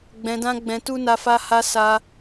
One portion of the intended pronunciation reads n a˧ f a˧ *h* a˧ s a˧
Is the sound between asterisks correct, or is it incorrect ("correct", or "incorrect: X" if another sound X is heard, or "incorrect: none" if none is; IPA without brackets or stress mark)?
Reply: correct